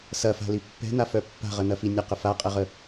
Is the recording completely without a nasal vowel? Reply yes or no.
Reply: yes